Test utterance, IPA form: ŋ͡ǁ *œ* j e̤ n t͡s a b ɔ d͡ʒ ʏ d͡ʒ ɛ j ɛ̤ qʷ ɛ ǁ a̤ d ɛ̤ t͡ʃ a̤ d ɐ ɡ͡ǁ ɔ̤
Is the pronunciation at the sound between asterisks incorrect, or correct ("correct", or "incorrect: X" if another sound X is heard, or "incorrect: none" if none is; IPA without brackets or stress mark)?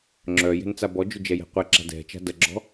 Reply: correct